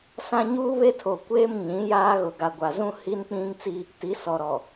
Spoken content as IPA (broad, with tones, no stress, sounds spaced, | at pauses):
s ã˦ ɲ uː˦ β e˦ tʰ o˨ kʷ eː˦ m ɲ ĩ˨˦ j aː˦ ɣ ʊ˨ ɡ a˨ ɡʷ a˨ z ũ˦ h i˦ n k͡p ĩ˦ ŋ t͡s i˦ | t i˨˦ s ɔ˨ ɾ ɔ˨